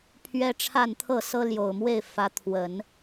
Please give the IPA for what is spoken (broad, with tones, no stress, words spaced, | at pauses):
pʰɥɛ˥ʈ͡ʂʰa˥˧nt̪ʰɤ˥˩ sɤ˥ljo˨˩ʊ̯mwe˥˩ɪ̯ fä˧˥t̪ʰwə˨˩˦n